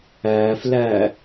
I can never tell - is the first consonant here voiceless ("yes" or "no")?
yes